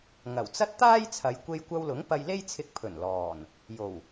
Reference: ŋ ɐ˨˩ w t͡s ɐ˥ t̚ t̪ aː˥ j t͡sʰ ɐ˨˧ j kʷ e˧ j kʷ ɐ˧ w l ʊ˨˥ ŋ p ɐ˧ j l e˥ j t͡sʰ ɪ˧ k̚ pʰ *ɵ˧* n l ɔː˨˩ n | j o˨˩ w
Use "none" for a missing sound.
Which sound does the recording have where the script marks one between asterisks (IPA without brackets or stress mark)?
ɵ˨˩